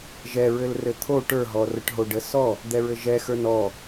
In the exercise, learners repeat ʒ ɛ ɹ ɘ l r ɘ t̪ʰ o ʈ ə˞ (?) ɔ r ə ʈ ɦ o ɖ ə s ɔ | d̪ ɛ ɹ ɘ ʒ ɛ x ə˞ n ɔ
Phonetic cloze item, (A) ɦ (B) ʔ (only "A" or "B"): A